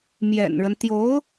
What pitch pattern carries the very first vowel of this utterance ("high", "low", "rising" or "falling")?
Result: low